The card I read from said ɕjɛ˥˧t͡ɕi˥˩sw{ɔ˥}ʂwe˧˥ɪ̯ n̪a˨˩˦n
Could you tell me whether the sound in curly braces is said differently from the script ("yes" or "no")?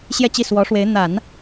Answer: yes